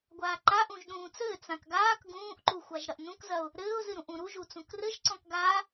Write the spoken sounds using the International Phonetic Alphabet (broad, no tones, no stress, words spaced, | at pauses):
ɡʷaːǃaʔũʒ ɗũːt͡sɘː t͡sãkɡaːk ɡũːʔǃuxʷaʒ ɾɐʔnũkzɐʊ̯ | ɾɘːʊ̯zɨɾũʔ ũɾuʒu t͡sũkrɘʒǀɔ̃k ɡa